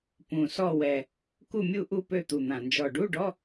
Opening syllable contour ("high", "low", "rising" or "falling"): low